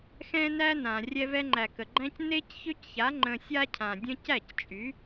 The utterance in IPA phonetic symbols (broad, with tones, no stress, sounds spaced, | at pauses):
x ɛ̃˦ n æ˦ n ã˨ rʲ ɛ˧ v ɛ˧ ŋ͡ǃ æ˨ k ə˨ ɡ͡ǃ æ̃˦ c n e˦ c ç ø˦ c ç a˨˦ ŋ͡ǃ ə̃˧ sʲ a˦ cʰ ã˨ dʲ ə̃˦ c æ˦˨ c t͡ʃʼ y˨˦